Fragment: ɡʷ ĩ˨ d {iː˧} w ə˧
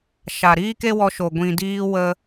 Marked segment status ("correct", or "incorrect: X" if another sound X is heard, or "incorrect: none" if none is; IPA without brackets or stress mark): correct